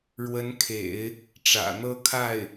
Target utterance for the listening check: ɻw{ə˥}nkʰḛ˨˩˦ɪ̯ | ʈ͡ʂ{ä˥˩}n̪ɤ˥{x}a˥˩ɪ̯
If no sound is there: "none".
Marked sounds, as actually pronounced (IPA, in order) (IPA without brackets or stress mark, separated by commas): ə˧˥, ä̰˨˩, kʰ